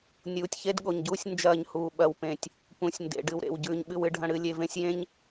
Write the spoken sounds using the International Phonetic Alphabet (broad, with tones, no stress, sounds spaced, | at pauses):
nʲ uː˨ tʲ ç e˦ d ɠ o˨ ɲ ɟ uː˦ sʲ n d͡ʒ ɐː˦˨ ɲ h uː˨ ɓ ɐ˨ w p ẽ˨ tʲ | p ũ˨ sʲ n d ḛ˨ ɖ ɨ˨ w ɾ ḛ˨ w ɟ ʉː˨ ɲ ɓ ɨ˦ w ɨ˦ ɖʱ ɐ̃˦ ɽ ɨ˨˦ lʲ e˨ v ẽ˦ sʲ j ẽ˦ ɲ